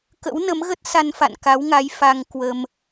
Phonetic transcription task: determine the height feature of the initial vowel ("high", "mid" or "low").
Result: mid